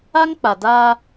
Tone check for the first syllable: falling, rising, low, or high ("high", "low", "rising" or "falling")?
high